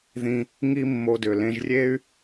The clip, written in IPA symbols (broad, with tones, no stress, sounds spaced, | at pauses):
ð ĩ˧ | ŋ i˦ mː o˧ d ʏ˨ l ẽ˧ ʒ rʲ e˦ y̯